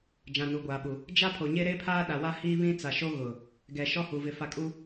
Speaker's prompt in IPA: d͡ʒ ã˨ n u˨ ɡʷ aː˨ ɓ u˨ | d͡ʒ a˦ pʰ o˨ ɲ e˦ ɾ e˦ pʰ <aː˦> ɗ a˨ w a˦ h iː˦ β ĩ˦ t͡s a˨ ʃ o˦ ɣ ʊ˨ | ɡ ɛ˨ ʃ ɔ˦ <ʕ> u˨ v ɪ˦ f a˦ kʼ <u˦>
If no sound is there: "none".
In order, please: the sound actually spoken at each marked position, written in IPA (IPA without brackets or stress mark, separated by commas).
aː˦, h, u˦